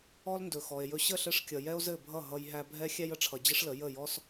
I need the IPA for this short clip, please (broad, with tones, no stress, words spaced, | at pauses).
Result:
ɔ˦lndɵ˨xɔ˨e̯jɵ˧ ɕə˦˨ɬɘ˧ʂkʲʌ˨ jɛ˦o̯zɘ˦˨bʱʌ˦˨ ɦʌ˧j ɦæ˧bʱɛ˦ xʲæ˧jə˨ʈ͡ʂʰʌ˨ d͡ʑə˦ʂlə˨˦ jə˦˨jɔ˦s